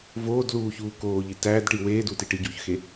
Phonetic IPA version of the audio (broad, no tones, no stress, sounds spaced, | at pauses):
v oː d l uː ç uː k oː ʎ i t æː d ʈ i w eː d u t i ʈ i ɟ uː ç x e